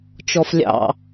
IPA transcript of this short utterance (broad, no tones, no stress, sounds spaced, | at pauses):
t͡ʃ ɔ f lʲ ɑ̰